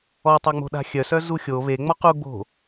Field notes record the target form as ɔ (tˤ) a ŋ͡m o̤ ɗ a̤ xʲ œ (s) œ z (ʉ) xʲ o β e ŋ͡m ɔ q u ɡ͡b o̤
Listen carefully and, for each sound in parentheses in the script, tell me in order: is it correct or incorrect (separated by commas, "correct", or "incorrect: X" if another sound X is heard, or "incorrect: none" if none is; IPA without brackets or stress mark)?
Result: correct, correct, incorrect: u